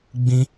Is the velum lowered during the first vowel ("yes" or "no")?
yes